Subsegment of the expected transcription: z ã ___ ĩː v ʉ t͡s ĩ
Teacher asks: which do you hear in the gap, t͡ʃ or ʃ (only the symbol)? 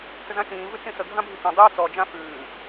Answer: t͡ʃ